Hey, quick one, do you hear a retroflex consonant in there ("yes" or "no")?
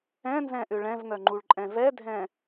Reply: yes